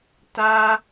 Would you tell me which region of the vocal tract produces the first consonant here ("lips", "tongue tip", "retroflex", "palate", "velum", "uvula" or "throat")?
tongue tip